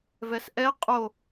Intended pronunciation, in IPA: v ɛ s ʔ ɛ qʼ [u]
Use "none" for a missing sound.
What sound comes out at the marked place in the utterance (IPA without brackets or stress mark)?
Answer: o